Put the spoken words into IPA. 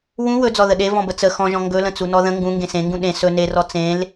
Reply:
wũ wɵd͡zɔ ðəɗe vɔ̃bət͡sə xɔ̃ʒɔ̃ ŋɡɵlə̃t͡su nɔðə̃ ŋɡũŋɡẽ sẽŋɡũ ɗẽ sɵ nerɔ t͡sẽl

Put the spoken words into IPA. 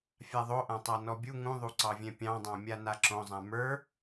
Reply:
fʲaðˤoʔãtˤa nɔbʲu ŋũðˤuǀɑvʲɛ̃ pʲɑ̃dˤɑ̃ mʲanaǁõzˤã mə˞

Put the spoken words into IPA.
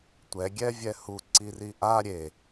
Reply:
tʷɛ ɡʲɛvʲɛhu ǀiriʔa ɾʲe

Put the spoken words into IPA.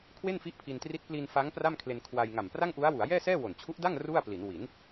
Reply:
kʰwe˥˩nfi˦˥ʔpʰi˧ntri˦˥t̚ pli˧n fa˦˥ŋ pra˥˩mkʰle˧nkʰwa˧j ŋa˨˩mpra˥˩ŋʔu˦˥a̯wu˩˦a̯ jɛː˥˩sɛː˥˩ wo˨˩nt͡ɕʰu˦˥ʔda˥˩ŋ ru˥˩a̯pli˩˦n wi˩˦n

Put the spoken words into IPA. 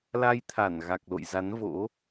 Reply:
la˧jt̪ʰa˧˩n ɣa˨˩k̚lo̰˧˨jza˨˦n vo̰˧˥

